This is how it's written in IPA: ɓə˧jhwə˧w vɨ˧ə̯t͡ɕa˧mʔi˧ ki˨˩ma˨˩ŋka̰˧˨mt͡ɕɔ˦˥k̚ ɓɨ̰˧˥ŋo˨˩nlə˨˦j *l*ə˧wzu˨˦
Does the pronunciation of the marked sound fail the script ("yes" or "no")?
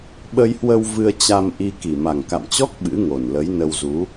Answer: yes